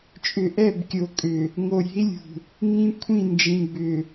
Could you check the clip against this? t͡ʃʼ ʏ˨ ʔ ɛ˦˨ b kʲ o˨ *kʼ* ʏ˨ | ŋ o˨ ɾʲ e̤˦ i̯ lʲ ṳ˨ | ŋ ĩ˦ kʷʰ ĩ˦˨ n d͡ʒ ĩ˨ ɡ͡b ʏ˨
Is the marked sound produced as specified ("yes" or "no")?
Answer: yes